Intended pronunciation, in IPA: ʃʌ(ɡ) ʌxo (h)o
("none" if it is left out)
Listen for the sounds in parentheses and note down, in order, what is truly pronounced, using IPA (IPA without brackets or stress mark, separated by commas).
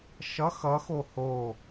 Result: x, h